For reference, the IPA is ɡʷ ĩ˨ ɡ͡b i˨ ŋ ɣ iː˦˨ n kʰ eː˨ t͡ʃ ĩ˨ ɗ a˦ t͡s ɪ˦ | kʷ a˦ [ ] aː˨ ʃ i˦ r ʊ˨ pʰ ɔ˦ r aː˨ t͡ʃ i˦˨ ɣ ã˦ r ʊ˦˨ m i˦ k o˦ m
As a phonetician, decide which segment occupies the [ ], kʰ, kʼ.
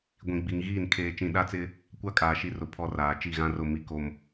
kʼ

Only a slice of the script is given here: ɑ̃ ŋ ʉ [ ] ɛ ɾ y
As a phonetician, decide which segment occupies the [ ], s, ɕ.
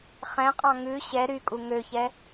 ɕ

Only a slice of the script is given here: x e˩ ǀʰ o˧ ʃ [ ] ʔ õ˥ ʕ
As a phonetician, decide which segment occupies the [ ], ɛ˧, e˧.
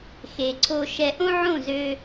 ɛ˧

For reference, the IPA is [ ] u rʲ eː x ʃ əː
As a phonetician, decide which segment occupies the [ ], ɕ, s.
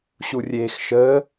ɕ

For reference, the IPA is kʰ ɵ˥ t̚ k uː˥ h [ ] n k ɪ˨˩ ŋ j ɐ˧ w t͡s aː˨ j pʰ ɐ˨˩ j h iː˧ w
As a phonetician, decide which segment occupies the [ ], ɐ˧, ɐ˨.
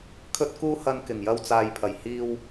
ɐ˧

